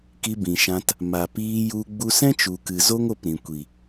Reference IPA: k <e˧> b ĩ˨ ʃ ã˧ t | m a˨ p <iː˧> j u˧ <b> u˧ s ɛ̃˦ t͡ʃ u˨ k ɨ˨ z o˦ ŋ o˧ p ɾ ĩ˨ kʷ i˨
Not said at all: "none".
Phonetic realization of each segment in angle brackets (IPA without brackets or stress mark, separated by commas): i˧, iː˧, ɡ͡b